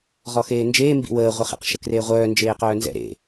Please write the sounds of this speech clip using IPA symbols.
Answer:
ʁ ɔ x eː n d͡ʒ eː m b ḭ w əː ʁʷ ə χ ḛ q ʃ ə k r eː ʁʷ œː n d͡ʒ eː q œː n z ɛ̰ ɾ ḛ

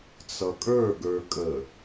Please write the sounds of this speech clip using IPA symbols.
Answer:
t͡s ʌ kʼ ə˞ ɡ ə˞ kʼ ə

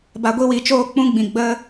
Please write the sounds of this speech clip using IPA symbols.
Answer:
b a˧ ɡʷ i˦ w i˨ t͡ʃ oː˦ k͡p ũ˦ ɡ͡b ĩ˨ ɡ͡b ə˦

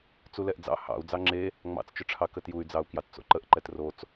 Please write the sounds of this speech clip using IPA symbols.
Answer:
t͡s u l ɛ ʔ d͡z ɑ̰ h ɑ̰ u̯ d͡z ɑ ŋ͡ǁ e | ŋ͡m ɑ̰ t͡s t͡ʃ ʏ ʈ͡ʂʰ ɑ k ə t j u y̯ d͡z ɑ u̯ k j ɑ t t͡s o̰ ǃ ə ʔ ǃ ɛ t r o t͡s

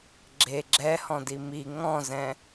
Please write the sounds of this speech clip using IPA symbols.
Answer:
ɡ͡ǁ e ɡ͡ǁ ɛ h ɔ̃ d i m i ŋ ɔ̃ z ɛ̃

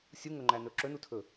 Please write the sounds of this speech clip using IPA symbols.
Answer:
sʲ u ŋ ɵ ŋ͡ǃ æ n ɵ ǁ ɵ n u tʰ ɵ

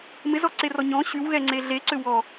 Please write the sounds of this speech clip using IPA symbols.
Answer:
m ɪ z ɔ ǀ e r ɔ ɲ ɔ̃ ɕ y w ɣ ɛ ŋ͡ǀ e ɮ e ǀ ʏ w ɔ

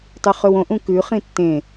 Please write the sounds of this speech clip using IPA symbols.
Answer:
tˤ ʉ χ ɵ w õ ʔ ũ k ʉ χ ĩ tː ẽ

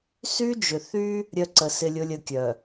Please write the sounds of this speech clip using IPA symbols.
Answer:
s y˦ d͡ʒ ʏ˨ θ y˦ | ɾʲ œ˦ ǀ ə˨ s ɪ˦ lʲ ʊ˦ lʲ ə˦ kʲ œ˨

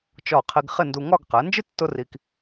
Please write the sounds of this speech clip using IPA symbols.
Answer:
t͡ʃ ɒ˧˩ qʰ i˧ ɡ χ ɪ˥˧ n d u˧ ŋ ɒ˥˧ ɡ q ɛ˩˧ n d͡ʒ ɪ˥ tː ʊ˥ r i˧ k

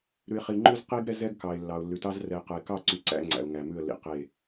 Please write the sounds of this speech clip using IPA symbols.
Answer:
ɾ ʉ˨ ɪ̯ χ i˨ ŋ͡ǃ ʉ˦ z q i˦ ɡ ɾ ɛ˦ z ɛ˦ ɡ k ɑ˨ ɪ̯ lː ɑ˨ ʊ̯ lː ʉ˨ t ɑ˦ z r ɛ˨ ɪ̯ q ɛ˨ ɪ̯ k ɑ˦˨ ǀ y˦ ǀ æ̰˦ ŋ͡ǀ æ̰˨ ʊ̯ ŋ æ˨ m ʉ˦˨ ə̯ lː ḭ˨ q e˦˨

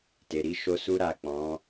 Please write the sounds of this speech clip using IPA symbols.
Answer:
t e˨ ɾ i˧ ʃ o˧ s u˦ ɾ a˦˨ k͡p ɔ̃˨˦

